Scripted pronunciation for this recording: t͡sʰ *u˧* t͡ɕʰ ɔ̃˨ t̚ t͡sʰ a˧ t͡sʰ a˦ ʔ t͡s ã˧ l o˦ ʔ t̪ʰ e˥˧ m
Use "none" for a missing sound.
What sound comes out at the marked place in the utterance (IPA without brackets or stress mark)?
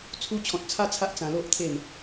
u˧